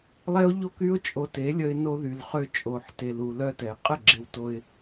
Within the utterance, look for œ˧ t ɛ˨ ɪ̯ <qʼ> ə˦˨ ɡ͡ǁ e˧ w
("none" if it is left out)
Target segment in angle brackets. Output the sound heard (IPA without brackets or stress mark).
qʼ